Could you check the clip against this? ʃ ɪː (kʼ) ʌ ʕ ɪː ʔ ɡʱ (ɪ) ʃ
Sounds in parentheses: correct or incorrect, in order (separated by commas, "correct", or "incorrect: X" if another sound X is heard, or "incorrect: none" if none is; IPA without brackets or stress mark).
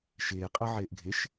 incorrect: qʼ, correct